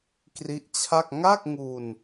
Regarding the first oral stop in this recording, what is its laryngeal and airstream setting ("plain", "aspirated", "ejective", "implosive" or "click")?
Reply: plain